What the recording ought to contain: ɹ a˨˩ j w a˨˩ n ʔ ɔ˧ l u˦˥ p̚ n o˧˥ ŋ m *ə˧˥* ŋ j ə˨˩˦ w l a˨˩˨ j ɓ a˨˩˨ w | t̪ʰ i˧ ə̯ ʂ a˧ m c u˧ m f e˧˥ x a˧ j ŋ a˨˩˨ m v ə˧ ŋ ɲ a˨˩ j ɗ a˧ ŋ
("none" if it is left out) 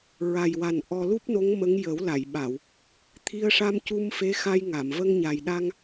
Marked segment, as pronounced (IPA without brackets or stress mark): ə˧˥